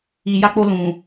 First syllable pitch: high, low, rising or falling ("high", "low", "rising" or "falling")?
low